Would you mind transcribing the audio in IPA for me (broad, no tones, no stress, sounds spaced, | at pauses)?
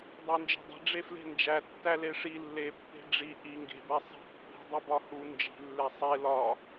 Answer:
dˤ æ n d͡ʒ e̤ dˤ e̤ ɖ͡ʐ e f l e̤ n d͡ʒ æ tː æ l e ʂ i lː e pː e̤ ɖ͡ʐ i ʔ i ŋ ɡ e̤ b æ sˤ i̤ pː i̤ dˤ i b ɒ h u n d͡ʒ i̤ lː e sˤ e l ɒ